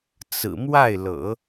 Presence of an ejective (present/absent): absent